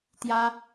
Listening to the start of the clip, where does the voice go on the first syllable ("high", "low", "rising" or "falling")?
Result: high